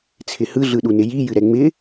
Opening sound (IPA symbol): t͡sʰ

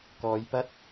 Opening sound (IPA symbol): k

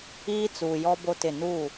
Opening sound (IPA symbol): iː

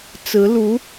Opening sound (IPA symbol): t͡s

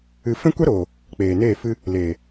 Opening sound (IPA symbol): ɨ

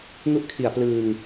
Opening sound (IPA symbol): ŋ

